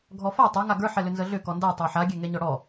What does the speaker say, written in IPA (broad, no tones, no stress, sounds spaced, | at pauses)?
ɡʱ ɔ f a tˤ a ŋ a ɡ ə˞ ħ ɛ l ʏ n z ə ɮ ʏ k ɔ n d a tˤ ə˞ ħ a ɡʲ ɛ ŋ ɛ ɲ ɔ ɽ ɔ